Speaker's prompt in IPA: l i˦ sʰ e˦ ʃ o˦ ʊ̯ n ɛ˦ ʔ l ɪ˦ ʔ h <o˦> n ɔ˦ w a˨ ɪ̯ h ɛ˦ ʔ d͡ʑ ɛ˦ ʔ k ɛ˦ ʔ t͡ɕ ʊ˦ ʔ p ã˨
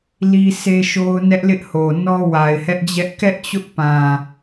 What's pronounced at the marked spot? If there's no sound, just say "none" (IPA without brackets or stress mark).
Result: o˨